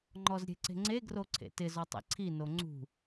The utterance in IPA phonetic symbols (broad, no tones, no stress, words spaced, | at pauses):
ŋ͡ǃɔzɾʲe̤ǀe̤ŋ͡ǀe ɡroǀʰḛtɪz ɔtˤḛǀʰi noŋ͡ǀṳ